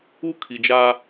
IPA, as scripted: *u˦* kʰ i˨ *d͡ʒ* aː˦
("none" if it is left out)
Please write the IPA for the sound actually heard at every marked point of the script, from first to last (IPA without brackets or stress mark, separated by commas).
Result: u˦, d͡ʒ